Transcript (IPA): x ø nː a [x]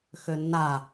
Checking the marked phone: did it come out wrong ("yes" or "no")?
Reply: yes